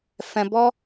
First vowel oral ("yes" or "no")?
no